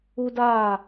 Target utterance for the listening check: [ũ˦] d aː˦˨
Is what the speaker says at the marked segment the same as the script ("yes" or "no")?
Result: no